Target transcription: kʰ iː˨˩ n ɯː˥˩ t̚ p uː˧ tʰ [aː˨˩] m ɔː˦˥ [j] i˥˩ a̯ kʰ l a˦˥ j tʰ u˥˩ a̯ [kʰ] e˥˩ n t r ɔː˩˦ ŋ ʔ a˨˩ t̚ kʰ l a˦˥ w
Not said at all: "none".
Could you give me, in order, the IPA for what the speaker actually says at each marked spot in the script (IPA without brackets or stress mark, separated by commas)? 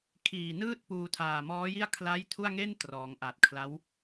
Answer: aː˨˩, j, ŋ